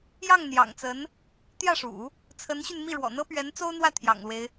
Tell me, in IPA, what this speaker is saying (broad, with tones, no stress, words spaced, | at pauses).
jɑ˥˩ŋn̪jɑ̰˨˩ŋt͡sə˧˥n | t̪jä˥˩ʂṵ˨˩˦ | t͡sʰə˧˥nɕy˧nmi˥˩ ɻwɔ̰˨˩n̪ɤ˥pɥɛ˧˥n t͡so˥ʊ̯n̪wä˥˩t̪ʰjɑ̰˨˩ŋlwe˦ɪ̯